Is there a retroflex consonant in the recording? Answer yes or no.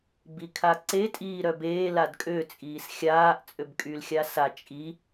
no